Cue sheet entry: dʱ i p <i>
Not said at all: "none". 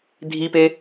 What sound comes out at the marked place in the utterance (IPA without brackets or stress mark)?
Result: e